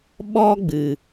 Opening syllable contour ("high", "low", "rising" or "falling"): high